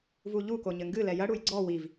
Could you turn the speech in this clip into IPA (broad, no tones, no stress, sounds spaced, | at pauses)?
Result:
v u ʎ u k o ɲ ɘ ŋ ɡ ɨ l ɛ j ɐ ɽ u j ɡ͡ǀ ɔ w i v